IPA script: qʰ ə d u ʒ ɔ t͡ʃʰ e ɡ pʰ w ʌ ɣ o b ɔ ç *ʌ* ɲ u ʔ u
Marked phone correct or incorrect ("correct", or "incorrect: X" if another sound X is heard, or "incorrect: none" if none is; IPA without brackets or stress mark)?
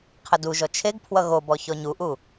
incorrect: ɔ